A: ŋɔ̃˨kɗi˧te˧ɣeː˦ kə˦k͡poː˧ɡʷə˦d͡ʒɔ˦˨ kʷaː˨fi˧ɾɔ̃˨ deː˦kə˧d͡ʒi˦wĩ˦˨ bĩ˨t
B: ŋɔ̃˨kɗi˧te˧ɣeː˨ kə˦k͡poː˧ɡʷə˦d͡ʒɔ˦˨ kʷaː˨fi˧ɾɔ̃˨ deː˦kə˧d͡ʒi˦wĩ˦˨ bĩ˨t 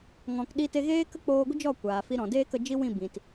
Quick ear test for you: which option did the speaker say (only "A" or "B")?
A